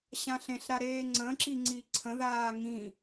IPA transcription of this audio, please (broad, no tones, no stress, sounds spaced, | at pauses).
ɕ ã ɬ ẽ ɬ ɾ a ɾ eː ŋ͡ǀ ə̃ ǁ i ŋ͡ǀ i ǀʰ ə̃ ð aː ŋ ĩ